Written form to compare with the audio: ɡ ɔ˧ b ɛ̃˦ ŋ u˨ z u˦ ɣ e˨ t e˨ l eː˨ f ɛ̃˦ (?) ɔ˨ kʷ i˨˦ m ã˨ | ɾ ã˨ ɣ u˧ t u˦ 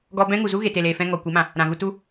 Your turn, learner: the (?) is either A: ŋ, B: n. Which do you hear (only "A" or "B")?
A